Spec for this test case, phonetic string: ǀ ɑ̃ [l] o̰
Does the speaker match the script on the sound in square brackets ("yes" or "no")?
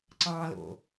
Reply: yes